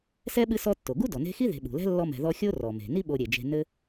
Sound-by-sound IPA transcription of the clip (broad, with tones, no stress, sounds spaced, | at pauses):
s ɛ˥ ɓ ɨ˦ s ɔ˦ tː o˩ ɡ u˥ d ɔ˩ n e̤˦ x i˥ ð e̤˨ ɓ ṳ˩ l ɛ̤˥ lː ɔ˦ m ɛ̤˨ ð ɔ˦ xʲ o˥ r ɔ˩ m e̤˩ n i˦ ɓ o˨ ɾʲ e˩ d͡ʒ e̤˨ n ɘ˥